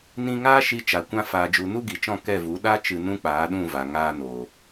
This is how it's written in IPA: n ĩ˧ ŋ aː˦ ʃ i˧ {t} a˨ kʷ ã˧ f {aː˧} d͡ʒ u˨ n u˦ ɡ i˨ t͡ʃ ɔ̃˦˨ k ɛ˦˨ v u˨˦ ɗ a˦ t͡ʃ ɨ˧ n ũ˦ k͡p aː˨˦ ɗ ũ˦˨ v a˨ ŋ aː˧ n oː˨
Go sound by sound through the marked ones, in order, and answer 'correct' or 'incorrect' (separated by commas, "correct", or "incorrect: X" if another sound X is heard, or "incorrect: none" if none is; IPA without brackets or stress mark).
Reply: incorrect: t͡ʃ, incorrect: aː˨